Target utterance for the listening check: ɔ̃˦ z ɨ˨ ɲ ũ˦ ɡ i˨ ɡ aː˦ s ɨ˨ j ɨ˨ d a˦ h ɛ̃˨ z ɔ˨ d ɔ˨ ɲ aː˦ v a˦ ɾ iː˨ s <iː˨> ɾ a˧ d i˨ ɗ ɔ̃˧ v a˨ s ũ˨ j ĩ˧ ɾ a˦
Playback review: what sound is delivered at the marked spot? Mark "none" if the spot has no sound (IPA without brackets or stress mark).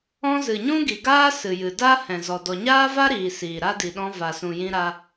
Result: iː˨